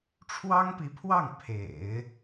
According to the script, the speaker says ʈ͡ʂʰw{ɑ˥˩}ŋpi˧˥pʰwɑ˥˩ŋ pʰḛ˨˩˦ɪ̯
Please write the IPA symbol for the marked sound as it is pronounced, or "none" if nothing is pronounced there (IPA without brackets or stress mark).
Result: ɑ˥